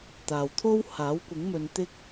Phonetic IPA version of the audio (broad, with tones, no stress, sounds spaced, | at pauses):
t̪ aː˨ w t̪ʰ o˥ w h aː˨˥ w kʷ ɪ˨˥ ŋ m ɵ˨˧ n t̪ ɪ˥ k̚